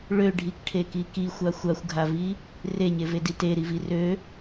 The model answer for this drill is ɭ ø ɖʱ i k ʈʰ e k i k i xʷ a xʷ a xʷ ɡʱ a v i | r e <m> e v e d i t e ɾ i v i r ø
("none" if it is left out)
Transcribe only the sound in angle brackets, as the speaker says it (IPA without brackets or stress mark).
ɲ